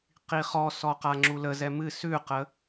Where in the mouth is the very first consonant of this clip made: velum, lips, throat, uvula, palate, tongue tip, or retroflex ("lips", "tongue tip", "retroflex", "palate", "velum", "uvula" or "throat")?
uvula